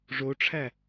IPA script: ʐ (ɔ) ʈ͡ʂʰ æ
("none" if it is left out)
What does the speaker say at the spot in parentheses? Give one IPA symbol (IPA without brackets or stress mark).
o